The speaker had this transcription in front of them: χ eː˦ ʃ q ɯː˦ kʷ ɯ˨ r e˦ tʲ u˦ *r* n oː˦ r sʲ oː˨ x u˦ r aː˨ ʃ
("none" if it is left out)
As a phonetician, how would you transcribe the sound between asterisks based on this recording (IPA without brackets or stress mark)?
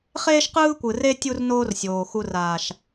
r